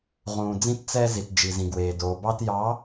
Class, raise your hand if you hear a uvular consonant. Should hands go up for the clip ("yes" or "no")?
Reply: yes